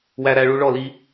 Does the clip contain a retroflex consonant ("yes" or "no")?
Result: yes